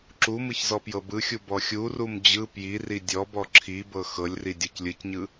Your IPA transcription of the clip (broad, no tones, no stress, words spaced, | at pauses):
ǁumɯç zɔpjɤbɯxʲu bɔxʲurum d͡ʑɯ pjiri dʲɔbɔ ǁʰibɤ xɤlʲri dʲɔclʲɯcɲɯ